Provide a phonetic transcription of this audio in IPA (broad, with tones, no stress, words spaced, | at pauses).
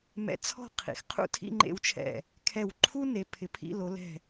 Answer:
mɛ̰˧t͡sʰɔ̤˥˧qʰḭ˩˧x qʰṵ˥˧tʰḭ˥˧ŋ͡ǃḛ˧wt͡ʃʰɛ̰˧˩ | kʰɛ˧˩wǃʰu˥ne˩˧ pʰɪ˩˧pʰḭ˥˧lo˩˧lɛ̤˧˩